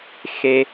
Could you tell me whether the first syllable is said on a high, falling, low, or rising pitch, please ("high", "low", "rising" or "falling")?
low